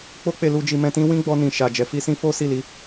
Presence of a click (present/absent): absent